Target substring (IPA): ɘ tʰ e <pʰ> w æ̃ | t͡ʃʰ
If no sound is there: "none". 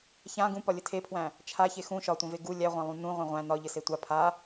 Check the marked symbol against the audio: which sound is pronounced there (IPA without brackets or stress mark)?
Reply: pʰ